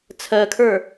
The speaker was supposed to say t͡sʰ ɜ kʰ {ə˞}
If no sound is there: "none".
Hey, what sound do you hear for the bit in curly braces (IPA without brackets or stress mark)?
ə˞